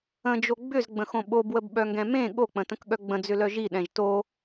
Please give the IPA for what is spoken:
ə̃ d͡ʒ o ɡ͡b ʏ z ɡ͡b ə̃ x õ ɓ o b w ə b ɓ œ ŋ ɡ ɛ̃ m ẽ ɠ o k͡p ə̃ t ə̃ k ɠ œ ɡ͡b ə̃ d͡z ʏ l œ ʒ i ɗ ɛ̃ ʒ t o

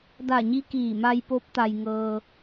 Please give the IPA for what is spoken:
d a˧˩ ɲ i˧ k iː˧˩ m a˧ j p o˧˥ p̚ t̪ a˧ j ŋ ɤː˧

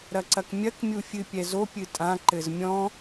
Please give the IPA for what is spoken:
ɾ ɐ ǀ ɐ k mʲ ɐ k mʲ u fʲ ɨ pʲ ɛ z o pʲ ɨ tʼ ã ǃ ɘ z mʲ ɔ̃

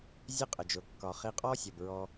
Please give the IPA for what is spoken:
zʲ e˦ qʼ ə˨ d͡ʒ ʊ˨ kː ɒ˨ χ i˧ qʼ ɔ˦ sʲ ʌ˨ b ɹ ɔ˧

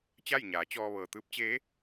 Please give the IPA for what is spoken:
t͡ɕ a˥˨ j ɲ aː˩˧ t͡ɕ ɔː˧ ʋ ɤː˩ t̪ ɯː˧˥ p̚ t͡ɕ eː˧˥

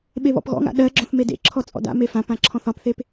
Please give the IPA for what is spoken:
ɓ e β ɔ̰ p ɣ ɔ̰ ŋ a̰ ɗ ɜ ɡ͡ǁ ɔ̃ θ m e d ḛ ǁʰ ɔ t͡sʼ ɔ̰ d a̰ m e f ã p ã ǁʰ ɔ̃ θ ɒ p θ e p

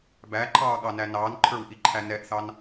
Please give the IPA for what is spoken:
b æ ǃʰ ɑː ɠ ɑ n æ n ɑː n ǃʰ ə˞ w ʔ i ǃʰ æ n ɛ ʔ θ ɑ n

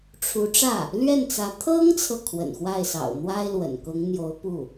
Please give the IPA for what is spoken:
ʈ͡ʂʰ u˧˥ ʈ͡ʂ ä˥˩ | l ɥ ɛ˥˩ n t͡s ä˧˥ t̪ʰ ɤ˥ ŋ t͡sʰ ɤ˨ kʰ w ə̰˨˩ n x w a˥˩ ɪ̯ s ɑ̰˨˩ ʊ̯ n̪ w a˥ ɪ̯ l w ə̰˨˩ n k ʊ˧˥ ŋ n̪ j o˧˥ ʊ̯ p u˥˩

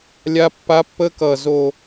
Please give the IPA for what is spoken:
lʲ a˦ pː a˦ pː ə˦ k ʌ˧ z o˧

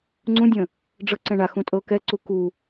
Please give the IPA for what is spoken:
ŋ͡ǀ ũ dʲ ə̃ | ɖ͡ʐ ɤ ǀ ɛ̃ ɳ a x ũ tʼ ɤ k ɛ ǀ u k u

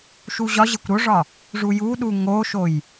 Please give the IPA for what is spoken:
ʃ u ʑ ɒ ʑ e kʷ ɾ o ʐ ɒ | ʐ u j u ɗ u ŋ o ʃ o j

